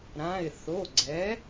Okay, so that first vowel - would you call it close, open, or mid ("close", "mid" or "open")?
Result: open